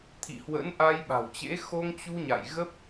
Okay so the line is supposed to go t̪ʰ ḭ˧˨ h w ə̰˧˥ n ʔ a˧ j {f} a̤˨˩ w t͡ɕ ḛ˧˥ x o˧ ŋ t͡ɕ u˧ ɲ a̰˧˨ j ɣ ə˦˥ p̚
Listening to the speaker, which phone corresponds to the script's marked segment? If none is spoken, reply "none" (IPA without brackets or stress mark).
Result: ɓ